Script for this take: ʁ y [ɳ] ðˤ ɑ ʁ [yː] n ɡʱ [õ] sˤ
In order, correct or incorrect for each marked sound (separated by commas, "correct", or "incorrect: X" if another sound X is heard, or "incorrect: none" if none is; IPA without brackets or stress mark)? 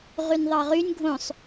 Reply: incorrect: n, incorrect: y, correct